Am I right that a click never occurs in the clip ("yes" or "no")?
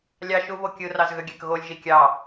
yes